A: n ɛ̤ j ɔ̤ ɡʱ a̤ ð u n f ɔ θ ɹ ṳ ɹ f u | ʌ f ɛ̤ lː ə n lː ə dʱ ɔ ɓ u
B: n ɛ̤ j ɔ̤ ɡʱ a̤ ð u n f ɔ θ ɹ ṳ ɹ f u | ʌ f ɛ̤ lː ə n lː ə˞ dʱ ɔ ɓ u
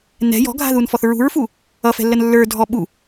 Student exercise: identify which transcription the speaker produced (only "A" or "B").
B